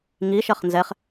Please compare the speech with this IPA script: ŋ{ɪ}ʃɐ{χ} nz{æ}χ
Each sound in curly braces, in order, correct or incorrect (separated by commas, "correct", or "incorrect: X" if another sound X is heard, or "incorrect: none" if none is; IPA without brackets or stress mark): incorrect: i, correct, incorrect: ɛ